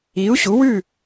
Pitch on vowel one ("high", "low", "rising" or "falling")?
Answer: rising